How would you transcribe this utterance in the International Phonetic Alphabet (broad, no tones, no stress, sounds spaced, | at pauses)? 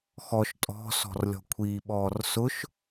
x ɔ ʃ tʼ ɔ̤ s ɔ̤ r lʲ ɔ̤ kʷʰ i ɓ ɔː r s ʊ ʃ